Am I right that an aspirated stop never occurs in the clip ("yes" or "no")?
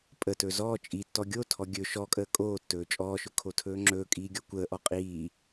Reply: no